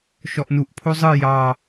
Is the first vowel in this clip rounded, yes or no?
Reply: yes